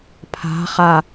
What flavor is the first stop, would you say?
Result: aspirated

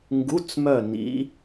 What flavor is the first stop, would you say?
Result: plain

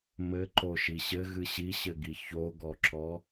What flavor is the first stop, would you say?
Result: click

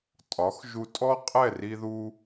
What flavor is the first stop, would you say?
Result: ejective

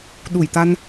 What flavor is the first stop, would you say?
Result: implosive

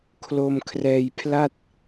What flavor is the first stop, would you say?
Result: aspirated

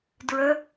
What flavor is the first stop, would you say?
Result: plain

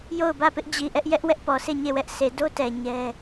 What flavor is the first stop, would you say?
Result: plain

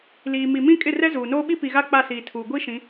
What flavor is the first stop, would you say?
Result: ejective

